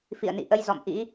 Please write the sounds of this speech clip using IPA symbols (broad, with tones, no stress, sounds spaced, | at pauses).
f ḭ˧˨ ə̯ n ḭ˧˨ ʔ ə˧ j z ɔ̰˧˨ m ʔ ḭ˧˥